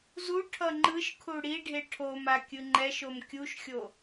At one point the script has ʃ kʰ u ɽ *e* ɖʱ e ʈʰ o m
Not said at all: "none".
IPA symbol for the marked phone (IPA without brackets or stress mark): i